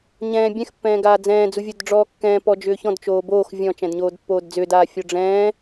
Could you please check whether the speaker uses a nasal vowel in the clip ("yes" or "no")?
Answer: yes